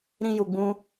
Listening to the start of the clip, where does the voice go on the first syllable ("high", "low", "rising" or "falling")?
high